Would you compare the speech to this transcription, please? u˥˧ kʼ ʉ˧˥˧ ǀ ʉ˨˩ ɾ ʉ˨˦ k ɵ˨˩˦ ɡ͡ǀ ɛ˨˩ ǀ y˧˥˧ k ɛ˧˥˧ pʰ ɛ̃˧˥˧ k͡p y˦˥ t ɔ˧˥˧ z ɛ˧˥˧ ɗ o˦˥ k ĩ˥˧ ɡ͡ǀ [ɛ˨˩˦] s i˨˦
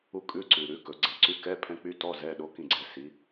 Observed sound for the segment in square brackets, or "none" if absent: ɛ˨˦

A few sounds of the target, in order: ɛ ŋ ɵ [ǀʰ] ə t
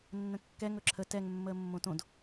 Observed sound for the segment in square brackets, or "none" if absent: ǁʰ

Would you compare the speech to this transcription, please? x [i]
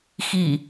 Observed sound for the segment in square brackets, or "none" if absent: i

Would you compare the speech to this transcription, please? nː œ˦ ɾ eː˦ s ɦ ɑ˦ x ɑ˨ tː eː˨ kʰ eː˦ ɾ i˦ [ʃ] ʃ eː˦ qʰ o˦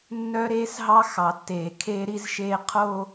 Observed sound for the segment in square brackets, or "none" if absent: z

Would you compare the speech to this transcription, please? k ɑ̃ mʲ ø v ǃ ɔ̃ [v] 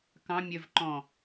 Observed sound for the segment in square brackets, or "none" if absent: none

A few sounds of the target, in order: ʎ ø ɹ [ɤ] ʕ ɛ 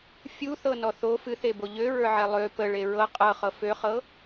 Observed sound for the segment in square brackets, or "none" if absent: ə˞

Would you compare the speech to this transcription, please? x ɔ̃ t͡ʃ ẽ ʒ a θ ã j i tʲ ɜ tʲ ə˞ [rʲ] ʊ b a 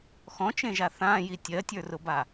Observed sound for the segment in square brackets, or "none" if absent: r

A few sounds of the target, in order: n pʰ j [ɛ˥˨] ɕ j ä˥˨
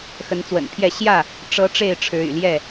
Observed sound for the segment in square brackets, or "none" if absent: ɛ˥˨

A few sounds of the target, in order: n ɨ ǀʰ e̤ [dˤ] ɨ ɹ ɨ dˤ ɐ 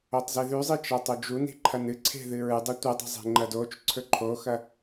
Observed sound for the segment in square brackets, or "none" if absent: ð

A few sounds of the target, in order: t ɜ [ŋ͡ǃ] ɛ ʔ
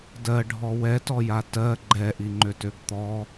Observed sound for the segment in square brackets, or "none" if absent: ɡ͡ǃ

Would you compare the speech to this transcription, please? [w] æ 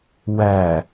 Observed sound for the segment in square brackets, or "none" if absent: w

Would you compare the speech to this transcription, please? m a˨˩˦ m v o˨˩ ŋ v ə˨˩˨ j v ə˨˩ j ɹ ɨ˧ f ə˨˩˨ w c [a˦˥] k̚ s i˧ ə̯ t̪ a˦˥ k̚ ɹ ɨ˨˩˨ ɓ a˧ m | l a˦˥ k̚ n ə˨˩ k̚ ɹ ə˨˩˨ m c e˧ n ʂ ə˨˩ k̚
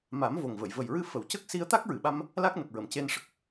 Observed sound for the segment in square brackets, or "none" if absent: ə˦˥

